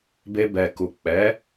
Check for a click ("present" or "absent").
absent